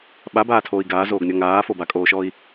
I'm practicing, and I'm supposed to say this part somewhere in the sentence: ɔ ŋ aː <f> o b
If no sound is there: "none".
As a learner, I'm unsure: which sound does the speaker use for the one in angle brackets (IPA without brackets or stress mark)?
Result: f